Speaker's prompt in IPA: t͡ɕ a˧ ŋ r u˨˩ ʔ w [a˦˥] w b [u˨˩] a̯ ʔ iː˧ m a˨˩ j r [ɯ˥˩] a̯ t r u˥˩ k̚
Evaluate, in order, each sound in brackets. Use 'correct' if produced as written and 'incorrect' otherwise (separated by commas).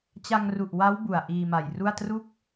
correct, correct, incorrect